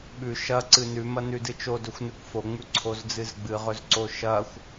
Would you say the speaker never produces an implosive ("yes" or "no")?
no